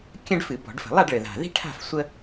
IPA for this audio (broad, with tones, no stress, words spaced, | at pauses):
kʲə̃˥ɖfɨ˧˩˧bɔ̤˧˩˧ɖfə̤˧˩˧ lˠa˥˧ɖɭɘ˨˩ða̤˨˩ ði̤˥ʈʰa̤˥˧f sʷə˥